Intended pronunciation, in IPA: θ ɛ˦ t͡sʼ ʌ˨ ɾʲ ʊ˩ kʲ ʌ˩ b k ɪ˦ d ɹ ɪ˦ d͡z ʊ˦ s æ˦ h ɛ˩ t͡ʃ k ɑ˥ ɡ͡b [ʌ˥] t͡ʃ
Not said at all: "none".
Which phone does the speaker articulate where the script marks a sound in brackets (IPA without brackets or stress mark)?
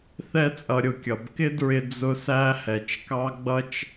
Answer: ʌ˥